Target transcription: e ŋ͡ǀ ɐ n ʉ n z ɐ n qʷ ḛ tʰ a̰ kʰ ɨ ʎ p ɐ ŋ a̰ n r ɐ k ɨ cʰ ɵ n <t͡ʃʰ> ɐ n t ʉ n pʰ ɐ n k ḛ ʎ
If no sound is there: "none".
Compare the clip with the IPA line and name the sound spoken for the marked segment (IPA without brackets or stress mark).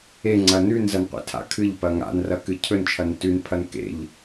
t͡ʃʰ